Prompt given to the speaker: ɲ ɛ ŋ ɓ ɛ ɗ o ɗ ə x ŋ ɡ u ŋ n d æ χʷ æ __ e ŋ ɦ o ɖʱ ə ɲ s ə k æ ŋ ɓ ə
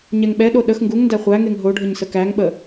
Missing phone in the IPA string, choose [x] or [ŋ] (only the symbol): ŋ